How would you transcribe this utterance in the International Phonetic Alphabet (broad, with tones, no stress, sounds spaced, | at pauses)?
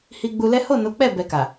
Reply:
h i˧ ɡ͡b u˧ l ɛ˦ h o˦˨ n o˨˦ k͡p ɛ˦˨ b ɛ˧ k a˨